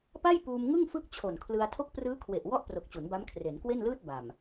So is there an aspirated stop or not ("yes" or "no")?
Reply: yes